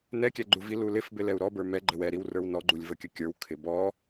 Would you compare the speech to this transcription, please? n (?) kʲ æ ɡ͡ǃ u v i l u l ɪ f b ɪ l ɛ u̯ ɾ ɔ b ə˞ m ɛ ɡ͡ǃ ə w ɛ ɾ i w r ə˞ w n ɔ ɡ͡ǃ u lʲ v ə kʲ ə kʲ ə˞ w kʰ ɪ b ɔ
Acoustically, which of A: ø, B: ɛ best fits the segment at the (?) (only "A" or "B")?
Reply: B